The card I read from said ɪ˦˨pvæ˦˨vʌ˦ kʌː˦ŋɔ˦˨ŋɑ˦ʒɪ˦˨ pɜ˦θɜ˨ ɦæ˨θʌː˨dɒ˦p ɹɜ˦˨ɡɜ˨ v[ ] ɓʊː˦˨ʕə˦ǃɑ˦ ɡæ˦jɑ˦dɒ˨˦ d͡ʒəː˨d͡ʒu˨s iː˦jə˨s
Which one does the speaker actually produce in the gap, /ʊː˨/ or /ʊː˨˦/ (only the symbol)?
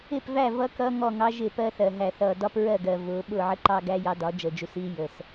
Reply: ʊː˨˦